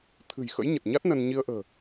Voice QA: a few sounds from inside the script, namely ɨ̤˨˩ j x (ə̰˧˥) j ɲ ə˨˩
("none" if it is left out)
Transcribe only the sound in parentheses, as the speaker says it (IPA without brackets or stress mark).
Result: ə̰˧˥